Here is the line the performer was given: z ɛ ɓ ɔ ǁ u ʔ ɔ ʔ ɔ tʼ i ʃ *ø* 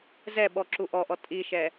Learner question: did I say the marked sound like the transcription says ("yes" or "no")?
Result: no